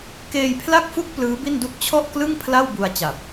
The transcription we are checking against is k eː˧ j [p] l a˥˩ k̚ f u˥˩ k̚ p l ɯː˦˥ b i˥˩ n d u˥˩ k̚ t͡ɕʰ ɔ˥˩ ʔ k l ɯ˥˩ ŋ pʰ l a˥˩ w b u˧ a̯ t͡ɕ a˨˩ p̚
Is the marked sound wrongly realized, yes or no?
yes